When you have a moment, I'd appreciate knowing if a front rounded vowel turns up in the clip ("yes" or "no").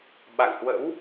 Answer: no